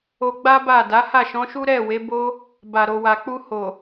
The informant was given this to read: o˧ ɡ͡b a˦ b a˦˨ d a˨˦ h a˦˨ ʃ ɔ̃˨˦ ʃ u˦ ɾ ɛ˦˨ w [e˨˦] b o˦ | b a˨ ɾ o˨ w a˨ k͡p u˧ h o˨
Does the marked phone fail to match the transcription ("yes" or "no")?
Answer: no